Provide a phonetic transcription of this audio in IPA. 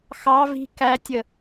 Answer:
x ɑ v i̤ k æ tʲ ə

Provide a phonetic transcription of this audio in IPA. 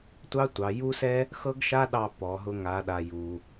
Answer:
tʷ ɑ˥ tʷ ɑ˩˧ j u˥ s ɛ˥ | x ɤ˥ ɡ ʃ a˥ ɗ ɑ˧ p ɔ˩˧ ɦ ʊ˧ ŋ a˩˧ ɗ a˩ j u˩

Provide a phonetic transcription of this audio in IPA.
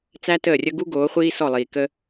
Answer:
t͡s æ˦ t əː˦˨ rʲ ə˦ ɡ u˦ ɡ oː˨˦ χʷ iː˦ s ɔ˦˨ lˠ iː˨ k ə˦

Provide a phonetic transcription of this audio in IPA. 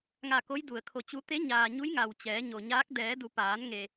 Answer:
ŋ a˧˩ k o˧˥ j d u˩ ə̯ kʰ o˧˩ t͡ɕ u˧˥ t̪ e˧˥ ɲ aː˩ ɲ u˧˥ j ŋ a˩ w t͡ɕ ɛː˩˧ ɲ o˩ ɲ aː˧˥ k̚ d ɛː˩˧ d u˩˧ p aː˩˧ n ŋ e˩

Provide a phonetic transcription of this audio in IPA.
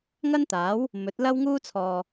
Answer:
ŋ ɐ˥ n t̪ aː˨˥ w | m ɵ˨˥ t̚ l ɐ˥ w ŋ uː˥ t͡sʰ ɔː˨

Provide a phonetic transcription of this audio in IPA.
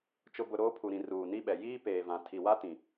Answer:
t͡ʃ ʊ˨ b ʊ˨ ɾ oː˦ pʰ u˨ ɾ ĩ˨ r uː˨ n i˦ ɓ ɛ˨ j iː˦ p eː˨ v ã˨ tʰ i˨ w a˦ t ĩ˨

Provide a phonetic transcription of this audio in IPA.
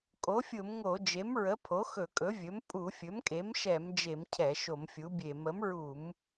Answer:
kʼ o˩˥ fʲ ʊ˧˩˧ m ŋ o˧˩˧ d͡ʒ e˩˥ m ɹ ə˩˥ pʰ o˩˥ x ɵ˧˩˧ kʼ ɵ˩˥ vʲ ɵ˩˥ m pʼ u˧˩˧ fʲ ɵ˩˥ m kʼ e˩˥ m ʃ ɛ˧˩˧ m d͡ʒ e˧˩˧ m cʰ ɛ˧˩˧ ʃ o˧˩˧ m fʲ u˩˥ bʲ e˧˩˧ m ə˩˥ m ɹ u˧˩˧ m

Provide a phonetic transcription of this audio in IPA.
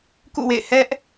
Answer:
k ṵ˦˨ w ḛ˦˨ ɪ̯ h ɛ˦ ʔ

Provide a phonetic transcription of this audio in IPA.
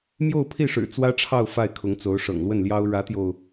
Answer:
m j o˥˧ ʊ̯ pʰ i˥˩ ʂ ɻ̩˨˩ t͡s w ä˥ ʈ͡ʂʰ ɑ˥˧ ʊ̯ f a˥˩ ɪ̯ kʰ ʊ˧˥ ŋ t͡s o˧˥ ʊ̯ ʂ ɤ̰˨˩ ŋ l w ə˥˩ n l j ɑ˥ ʊ̯ ɻ ä˧˥ t̪ j o˧ ʊ̯

